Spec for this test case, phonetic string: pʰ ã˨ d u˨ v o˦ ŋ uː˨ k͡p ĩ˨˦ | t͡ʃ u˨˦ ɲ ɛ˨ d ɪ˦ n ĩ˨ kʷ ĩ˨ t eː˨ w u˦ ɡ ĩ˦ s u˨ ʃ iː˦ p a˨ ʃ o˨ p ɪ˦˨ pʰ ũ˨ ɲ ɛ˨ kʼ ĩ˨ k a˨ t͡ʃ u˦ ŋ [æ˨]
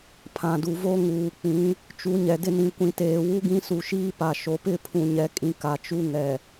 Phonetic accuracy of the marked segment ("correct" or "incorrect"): incorrect